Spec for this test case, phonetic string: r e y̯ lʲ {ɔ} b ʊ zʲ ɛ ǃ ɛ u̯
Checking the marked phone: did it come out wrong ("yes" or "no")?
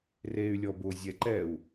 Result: no